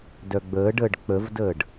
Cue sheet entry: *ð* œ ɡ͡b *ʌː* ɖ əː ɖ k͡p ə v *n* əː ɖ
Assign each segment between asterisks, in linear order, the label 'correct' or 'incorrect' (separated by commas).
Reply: incorrect, incorrect, incorrect